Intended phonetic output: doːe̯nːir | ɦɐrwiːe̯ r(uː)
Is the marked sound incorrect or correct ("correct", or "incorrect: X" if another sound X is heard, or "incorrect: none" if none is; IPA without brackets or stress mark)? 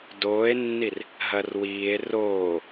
incorrect: oː